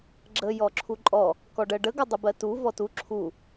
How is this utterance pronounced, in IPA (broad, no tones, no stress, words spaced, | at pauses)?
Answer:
ɡ͡ǁə jɔǁʰuǃʼɔ | kɔɖɜɖə ɡədˤəbɜtu vɔtu ǁʰu